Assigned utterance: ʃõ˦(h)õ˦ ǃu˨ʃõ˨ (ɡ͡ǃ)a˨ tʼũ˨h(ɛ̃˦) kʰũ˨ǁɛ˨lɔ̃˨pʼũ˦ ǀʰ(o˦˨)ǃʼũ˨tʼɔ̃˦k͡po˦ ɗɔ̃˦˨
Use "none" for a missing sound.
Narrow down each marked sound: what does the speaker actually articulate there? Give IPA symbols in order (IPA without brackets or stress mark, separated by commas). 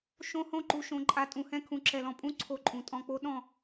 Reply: h, ǃʼ, ɛ̃˦, o˦˨